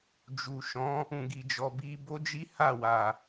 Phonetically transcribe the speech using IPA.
d͡ʒu˨ʃɔ̃˨˦ | ũ˨ɡi˨d͡ʒɔ˨bi˧ bo˦d͡ʒi˦ha˦˨ wa˨

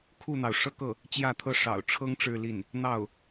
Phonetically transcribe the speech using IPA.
kʰu˥˩n̪ɑ˩ʊ̯ ʂɤ˥˧kɤ˥˩ | t͡ɕjä˥˧t̪ʰɤ˥˩ ʂɑ̰˨˩ʊ̯ʈ͡ʂʰɤ˥ŋ ʈ͡ʂɻ̩˥˧li˥˩n | n̪ɑ˥˩ʊ̯

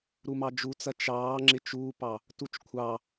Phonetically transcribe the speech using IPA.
ɾumɑd͡ʒut͡sɐ t͡ʃɑː ŋ͡ǁɪt͡ʃuːpɑ | tut͡ʃkʷʰɑ

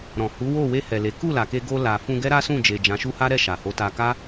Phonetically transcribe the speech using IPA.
ɾɔ̃˨hu˨˦wo˦˨ we˧hɛ˨ le˨˦ ku˦˨la˨ke˧ɡo˧ la˨ fũ˧ɡɛ˦ɾa˦sũ˦˨ d͡ʒe˨d͡ʒã˨˦ʃu˦ha˦ ɾɛ˦˨ʃa˨ho˨˦ta˧ ka˦

